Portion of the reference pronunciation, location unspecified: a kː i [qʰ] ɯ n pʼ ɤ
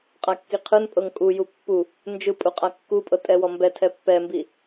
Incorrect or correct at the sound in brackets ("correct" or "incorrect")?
correct